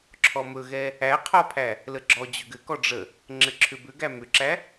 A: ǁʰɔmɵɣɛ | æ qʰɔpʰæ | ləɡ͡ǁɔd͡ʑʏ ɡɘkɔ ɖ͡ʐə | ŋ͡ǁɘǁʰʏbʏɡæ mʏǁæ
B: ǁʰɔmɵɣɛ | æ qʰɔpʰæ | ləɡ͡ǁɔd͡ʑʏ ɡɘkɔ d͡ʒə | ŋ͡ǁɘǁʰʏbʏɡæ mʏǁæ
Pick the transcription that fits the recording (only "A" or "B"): A